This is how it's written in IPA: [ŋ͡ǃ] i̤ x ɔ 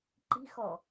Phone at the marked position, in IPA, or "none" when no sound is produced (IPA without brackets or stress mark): ǃ